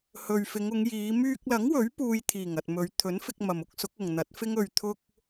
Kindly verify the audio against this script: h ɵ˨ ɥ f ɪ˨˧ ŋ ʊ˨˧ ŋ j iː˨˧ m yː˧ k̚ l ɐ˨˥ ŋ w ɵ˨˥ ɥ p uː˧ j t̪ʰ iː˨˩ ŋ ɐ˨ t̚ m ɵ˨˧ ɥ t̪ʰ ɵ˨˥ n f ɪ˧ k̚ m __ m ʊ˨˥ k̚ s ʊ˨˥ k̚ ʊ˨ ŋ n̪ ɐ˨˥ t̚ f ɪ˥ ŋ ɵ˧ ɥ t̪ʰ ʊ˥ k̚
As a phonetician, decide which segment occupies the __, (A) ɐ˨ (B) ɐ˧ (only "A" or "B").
A